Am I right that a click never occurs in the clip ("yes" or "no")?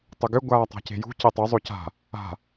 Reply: yes